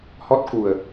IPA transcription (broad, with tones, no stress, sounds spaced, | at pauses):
h ɔ˦˥ t̚ k u˨˩ ə̯